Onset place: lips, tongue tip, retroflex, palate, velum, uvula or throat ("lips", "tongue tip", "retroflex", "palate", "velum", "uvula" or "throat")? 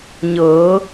palate